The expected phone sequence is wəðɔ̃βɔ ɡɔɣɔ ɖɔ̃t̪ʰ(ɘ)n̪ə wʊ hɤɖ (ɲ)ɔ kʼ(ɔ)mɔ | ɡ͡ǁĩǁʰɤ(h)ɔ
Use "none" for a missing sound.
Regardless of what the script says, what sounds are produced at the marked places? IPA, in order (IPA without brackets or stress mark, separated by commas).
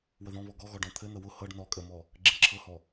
ɘ, n, ə, h